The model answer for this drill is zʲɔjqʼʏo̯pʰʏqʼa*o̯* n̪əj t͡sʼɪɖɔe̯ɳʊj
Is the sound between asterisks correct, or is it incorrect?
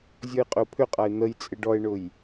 incorrect